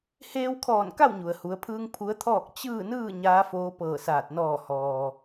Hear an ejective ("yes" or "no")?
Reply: no